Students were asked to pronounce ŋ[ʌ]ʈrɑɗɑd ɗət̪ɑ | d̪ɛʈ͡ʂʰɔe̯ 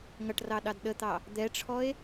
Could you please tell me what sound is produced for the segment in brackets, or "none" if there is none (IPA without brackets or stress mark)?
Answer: ʌ